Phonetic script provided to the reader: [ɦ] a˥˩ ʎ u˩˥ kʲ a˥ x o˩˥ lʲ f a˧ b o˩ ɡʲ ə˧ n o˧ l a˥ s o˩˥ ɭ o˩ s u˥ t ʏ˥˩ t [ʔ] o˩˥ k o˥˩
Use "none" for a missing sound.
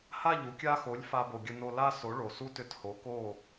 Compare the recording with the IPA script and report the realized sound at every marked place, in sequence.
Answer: h, h

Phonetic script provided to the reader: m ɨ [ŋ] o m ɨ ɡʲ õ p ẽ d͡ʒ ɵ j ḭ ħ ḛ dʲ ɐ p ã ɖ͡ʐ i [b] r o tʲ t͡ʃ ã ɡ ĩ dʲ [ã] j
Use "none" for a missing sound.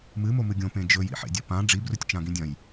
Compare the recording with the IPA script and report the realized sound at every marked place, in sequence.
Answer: m, b, ɐ̃

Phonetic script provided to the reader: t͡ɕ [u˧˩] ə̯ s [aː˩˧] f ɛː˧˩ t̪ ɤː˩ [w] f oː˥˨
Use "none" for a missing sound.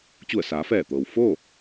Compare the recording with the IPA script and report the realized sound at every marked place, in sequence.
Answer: u˧˩, aː˩˧, w

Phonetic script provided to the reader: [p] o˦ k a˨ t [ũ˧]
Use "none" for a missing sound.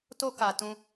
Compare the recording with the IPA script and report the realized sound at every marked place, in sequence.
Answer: t, ũ˧

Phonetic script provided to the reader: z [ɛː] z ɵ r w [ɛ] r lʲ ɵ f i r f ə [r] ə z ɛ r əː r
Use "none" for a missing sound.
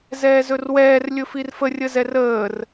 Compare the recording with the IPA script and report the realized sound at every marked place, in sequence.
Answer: ɛː, ɛː, rʲ

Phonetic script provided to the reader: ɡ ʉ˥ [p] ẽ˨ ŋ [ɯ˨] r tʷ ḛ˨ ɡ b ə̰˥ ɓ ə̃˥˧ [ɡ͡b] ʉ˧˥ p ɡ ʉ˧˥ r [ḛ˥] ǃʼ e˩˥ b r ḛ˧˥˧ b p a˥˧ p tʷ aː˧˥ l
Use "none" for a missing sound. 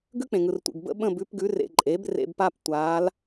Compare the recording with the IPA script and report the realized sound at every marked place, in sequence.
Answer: k͡p, ɯ˨, b, ḛ˨

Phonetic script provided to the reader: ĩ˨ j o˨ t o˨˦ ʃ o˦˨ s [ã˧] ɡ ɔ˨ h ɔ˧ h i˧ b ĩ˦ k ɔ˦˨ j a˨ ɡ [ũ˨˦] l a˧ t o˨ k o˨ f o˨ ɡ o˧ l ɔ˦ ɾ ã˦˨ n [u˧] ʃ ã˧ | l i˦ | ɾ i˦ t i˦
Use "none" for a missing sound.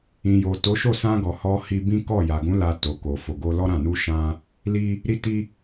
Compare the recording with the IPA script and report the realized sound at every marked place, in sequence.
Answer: ã˧, ũ˨˦, u˧

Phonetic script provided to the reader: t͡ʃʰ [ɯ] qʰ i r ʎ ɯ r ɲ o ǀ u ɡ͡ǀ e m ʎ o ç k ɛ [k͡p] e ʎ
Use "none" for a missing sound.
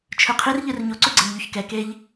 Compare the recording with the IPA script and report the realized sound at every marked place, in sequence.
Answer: ɯ, k

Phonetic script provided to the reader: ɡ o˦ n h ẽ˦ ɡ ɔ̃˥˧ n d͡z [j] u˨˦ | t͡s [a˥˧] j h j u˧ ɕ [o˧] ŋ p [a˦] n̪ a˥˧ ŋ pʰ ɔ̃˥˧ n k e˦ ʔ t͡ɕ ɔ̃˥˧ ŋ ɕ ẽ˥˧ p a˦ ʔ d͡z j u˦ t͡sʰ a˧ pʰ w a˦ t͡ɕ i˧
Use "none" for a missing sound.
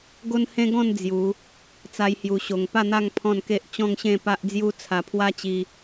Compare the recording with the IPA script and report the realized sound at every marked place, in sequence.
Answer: j, a˦, o˧, a˥˧

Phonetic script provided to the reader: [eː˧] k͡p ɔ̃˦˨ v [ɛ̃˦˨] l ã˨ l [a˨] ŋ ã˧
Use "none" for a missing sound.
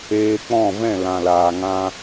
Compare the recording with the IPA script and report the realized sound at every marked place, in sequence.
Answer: eː˧, ɛ̃˦˨, aː˨

